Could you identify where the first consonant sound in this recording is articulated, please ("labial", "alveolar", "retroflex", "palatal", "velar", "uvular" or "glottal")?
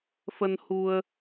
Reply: labial